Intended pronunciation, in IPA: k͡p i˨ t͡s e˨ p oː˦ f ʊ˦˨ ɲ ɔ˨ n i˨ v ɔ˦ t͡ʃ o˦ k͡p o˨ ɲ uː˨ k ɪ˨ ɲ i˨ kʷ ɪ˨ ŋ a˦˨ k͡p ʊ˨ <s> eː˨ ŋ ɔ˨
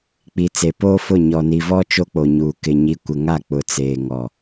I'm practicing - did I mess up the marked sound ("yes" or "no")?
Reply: yes